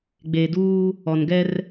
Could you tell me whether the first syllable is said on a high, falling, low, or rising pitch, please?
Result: low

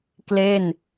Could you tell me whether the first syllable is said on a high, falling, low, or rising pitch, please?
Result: falling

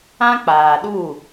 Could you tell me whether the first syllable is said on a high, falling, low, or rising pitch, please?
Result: high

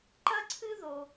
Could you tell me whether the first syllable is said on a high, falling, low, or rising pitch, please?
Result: high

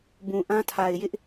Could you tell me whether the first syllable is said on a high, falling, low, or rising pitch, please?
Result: low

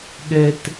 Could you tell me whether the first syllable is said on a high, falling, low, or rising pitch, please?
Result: low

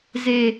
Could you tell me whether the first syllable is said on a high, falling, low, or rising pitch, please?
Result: low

